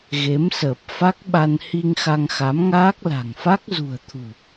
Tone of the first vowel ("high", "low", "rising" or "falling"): rising